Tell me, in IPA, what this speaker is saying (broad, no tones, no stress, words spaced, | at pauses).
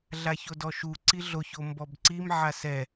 ɮaçodɔʃu ǀiɮoço mbɔbǀim ʕasɛ